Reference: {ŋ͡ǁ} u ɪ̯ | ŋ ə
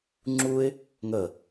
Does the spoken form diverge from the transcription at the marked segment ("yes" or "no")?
no